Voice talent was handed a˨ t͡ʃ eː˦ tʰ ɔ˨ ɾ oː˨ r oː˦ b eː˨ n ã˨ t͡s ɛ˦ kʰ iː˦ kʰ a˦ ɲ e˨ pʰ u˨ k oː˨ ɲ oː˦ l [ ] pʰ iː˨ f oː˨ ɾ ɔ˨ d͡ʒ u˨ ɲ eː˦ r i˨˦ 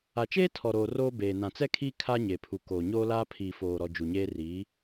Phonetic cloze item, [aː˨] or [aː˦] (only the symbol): aː˦